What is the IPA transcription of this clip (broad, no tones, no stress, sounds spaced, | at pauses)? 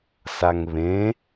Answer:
s a ŋ β ẽ